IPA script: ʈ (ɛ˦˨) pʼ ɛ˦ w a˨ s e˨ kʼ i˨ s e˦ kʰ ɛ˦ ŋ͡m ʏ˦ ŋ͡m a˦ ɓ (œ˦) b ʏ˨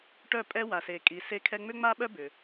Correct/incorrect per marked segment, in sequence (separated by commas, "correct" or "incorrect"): incorrect, correct